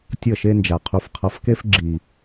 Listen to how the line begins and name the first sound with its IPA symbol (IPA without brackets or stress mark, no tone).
tʲ